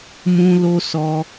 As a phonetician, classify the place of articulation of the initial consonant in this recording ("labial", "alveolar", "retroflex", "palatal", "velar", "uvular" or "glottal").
labial